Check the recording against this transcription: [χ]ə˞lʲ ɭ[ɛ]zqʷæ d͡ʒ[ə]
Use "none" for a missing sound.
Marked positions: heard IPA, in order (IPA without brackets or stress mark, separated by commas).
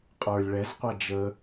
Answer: qʼ, ɛ, ə